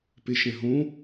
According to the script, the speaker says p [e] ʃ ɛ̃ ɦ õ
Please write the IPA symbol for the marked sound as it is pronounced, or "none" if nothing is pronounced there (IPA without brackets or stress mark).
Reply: e